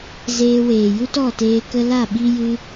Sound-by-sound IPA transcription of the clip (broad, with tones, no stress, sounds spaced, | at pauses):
z eː˧ w eː˨ j u˦ t ɔ˦˨ t eː˧ k ə˧ l a˦˨ ɓ i˦ j ɨ˦